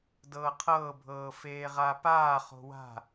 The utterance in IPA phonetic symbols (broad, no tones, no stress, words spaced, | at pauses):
dɤːqʰɤːbʱɤː feːʁapaː χo̤wa̤